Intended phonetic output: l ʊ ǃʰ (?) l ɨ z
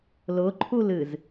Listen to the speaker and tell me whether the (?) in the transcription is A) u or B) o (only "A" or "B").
A